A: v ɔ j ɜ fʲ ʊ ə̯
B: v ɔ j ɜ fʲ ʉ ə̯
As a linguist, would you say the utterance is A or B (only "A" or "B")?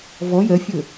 A